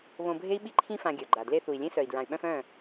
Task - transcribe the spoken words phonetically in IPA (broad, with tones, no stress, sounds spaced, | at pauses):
β õ˧ bʱ e˦ i̯ ɓ i˦ ǃʰ ĩ˦ f ã˧ ɡʲ œ˨ ɡ͡ǃ a˨ d l e˦ θ u˨ i̯ lʲ ẽ˦ s œ˨ i̯ d ɹ ã˨ y̯ ɓ œ̃˧ f œ̃˦˨